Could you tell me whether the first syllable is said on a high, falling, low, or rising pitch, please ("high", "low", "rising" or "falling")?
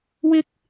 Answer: high